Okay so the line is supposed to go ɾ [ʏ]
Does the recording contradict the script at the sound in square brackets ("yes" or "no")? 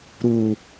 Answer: yes